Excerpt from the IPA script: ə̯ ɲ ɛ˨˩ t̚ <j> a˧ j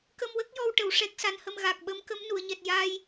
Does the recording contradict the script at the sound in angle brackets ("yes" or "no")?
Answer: no